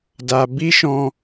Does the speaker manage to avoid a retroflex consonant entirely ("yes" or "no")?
yes